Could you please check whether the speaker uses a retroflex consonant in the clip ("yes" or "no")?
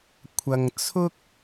no